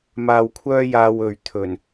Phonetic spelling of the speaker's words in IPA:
m aː˧ w kʷʰ œː˥ j aː˧ w ɵ˨ ɥ t̪ʰ ɵ˨˩ n

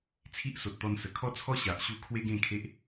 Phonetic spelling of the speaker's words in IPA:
t͡sʰ i˦ ʔ s o˨ t̚ t̪ ɔ˧ n s ə˨˩ kʰ ɔ˦ t͡sʰ ɔ˦ ɕ a˨ ʔ ɕ u˧ kʰ w e˦ ɡ ẽ˥˧ kʰ e˦ ʔ

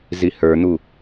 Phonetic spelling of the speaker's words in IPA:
z i h ə˞ n̪ u

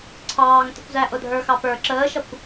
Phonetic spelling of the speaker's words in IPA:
ǀʰ ɑː ŋ t ə̤ kʷ z æ ʔ ʊ dʱ ə˞ x ɑ p ə˞ ǁ əː ʃ ʌ kʷ

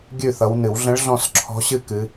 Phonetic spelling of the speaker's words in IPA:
ɡʲ ʉ˥˩ θ ʌ˨˦ w n ɨ˨˩˦ w ɮ ə̃˨˦ ɭ ɮ ɔ̃˧˩ s ǁʰ ɔ̤˨˦ ɕ ɨ˧˩ k ɨ˨˦

